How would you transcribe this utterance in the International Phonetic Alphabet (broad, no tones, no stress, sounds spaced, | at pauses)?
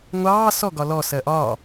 ŋʷ ɑː s ɔ ɡ ɒ l ɔ s ɜ ʔ ɒː